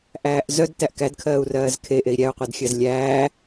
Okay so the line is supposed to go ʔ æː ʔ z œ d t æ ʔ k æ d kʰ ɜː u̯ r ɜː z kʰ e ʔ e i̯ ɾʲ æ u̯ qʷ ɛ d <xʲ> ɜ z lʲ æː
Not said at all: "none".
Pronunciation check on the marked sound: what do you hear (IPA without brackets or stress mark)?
xʲ